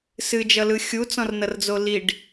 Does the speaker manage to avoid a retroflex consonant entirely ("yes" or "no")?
no